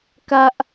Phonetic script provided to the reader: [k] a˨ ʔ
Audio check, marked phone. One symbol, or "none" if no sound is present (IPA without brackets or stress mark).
k